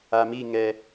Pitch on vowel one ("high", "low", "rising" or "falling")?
low